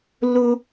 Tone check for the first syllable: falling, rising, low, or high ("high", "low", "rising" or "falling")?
high